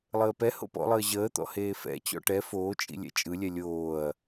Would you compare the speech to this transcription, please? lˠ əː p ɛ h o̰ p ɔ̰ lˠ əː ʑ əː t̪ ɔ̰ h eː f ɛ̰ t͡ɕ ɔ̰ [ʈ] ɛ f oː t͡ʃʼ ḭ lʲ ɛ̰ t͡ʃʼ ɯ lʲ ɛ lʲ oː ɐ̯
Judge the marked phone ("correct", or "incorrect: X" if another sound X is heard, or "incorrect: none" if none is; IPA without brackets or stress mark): correct